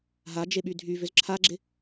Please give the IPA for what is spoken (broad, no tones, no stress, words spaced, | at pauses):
ɦad͡ʒeɓy dʱyvʏz ǁʰaɡ͡ǁɪ